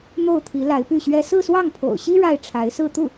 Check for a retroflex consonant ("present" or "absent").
present